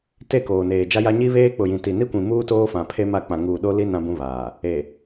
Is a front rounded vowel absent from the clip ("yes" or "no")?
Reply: yes